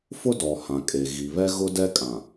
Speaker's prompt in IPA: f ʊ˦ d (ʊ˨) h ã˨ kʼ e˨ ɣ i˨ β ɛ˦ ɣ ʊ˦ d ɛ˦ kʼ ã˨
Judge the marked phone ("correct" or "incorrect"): incorrect